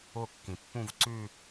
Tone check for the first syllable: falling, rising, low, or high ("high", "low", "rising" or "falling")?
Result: falling